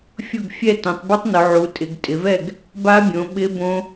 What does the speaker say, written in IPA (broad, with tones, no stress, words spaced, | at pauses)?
fʲʊ˥˨ɡfʲɛ˥˨ tẽ˩˧tˤbu˦˥tˤnʊ˩˧ʕu˩˧ tʼɪ˩˧ɡtʼɪ˩˧vɛ˥˨ɡ | ba˦˥bʲõ˩˧ ɓɪ˦˥bõ˦˥